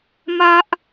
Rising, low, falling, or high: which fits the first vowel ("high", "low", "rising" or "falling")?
high